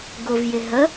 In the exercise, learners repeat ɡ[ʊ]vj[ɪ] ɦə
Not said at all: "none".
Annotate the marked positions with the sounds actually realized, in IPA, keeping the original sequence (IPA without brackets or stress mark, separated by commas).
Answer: ʊ, ɪ